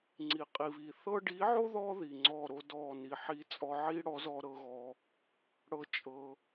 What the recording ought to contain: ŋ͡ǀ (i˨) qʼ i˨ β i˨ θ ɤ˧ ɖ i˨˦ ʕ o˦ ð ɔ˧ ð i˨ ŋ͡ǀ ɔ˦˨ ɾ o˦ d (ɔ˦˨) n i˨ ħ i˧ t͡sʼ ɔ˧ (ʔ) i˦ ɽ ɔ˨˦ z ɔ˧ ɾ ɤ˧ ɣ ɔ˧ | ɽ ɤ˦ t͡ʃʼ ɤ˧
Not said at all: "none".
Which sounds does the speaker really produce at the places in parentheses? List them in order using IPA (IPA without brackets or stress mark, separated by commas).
i˨, ɔ˦˨, ʕ